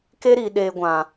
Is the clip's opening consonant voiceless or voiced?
voiceless